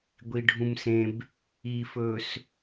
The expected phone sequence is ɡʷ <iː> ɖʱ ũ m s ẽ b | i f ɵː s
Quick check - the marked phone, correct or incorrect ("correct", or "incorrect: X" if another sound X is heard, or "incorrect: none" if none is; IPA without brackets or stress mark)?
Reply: incorrect: i